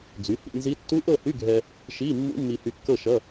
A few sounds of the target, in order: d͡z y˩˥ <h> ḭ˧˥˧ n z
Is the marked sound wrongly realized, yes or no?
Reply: no